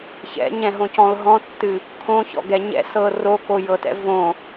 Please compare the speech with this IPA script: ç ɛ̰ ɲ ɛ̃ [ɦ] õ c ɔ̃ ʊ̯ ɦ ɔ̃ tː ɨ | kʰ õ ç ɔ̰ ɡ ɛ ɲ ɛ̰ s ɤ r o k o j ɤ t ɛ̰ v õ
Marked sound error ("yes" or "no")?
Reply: no